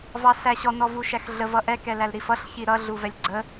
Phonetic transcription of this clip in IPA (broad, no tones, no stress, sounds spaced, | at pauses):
v ɑ s æ ɕ ɔ n ɔ v u ʃ æ x ɮ ə v ʌ ʔ ɛ k ɛ l æ l ɾ i f ʌ ɬ ç i ɾ ʌ ɮ u v ɛ lʲ ɡ͡ǀ ə